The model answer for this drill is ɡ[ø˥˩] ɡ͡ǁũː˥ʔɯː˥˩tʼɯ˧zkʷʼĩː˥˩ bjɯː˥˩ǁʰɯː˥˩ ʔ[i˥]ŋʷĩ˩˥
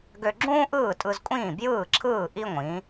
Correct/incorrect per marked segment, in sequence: incorrect: ø˧, correct

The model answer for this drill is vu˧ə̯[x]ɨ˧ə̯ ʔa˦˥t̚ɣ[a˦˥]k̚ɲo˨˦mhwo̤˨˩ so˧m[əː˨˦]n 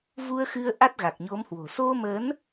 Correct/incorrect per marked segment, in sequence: correct, incorrect: a˨˩, correct

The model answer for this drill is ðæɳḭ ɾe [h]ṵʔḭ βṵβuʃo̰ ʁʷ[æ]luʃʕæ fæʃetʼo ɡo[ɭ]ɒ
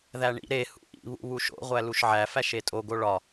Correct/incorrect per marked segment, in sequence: correct, correct, correct

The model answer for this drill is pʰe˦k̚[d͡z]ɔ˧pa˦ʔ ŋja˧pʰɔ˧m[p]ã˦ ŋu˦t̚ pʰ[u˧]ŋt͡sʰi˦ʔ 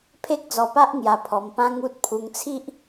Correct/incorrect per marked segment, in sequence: correct, correct, correct

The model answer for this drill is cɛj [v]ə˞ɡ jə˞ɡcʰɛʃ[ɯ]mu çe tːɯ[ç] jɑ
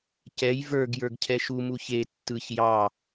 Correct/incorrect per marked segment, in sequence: correct, incorrect: u, correct

